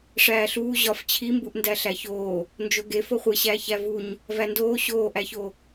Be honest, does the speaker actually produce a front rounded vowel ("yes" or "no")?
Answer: no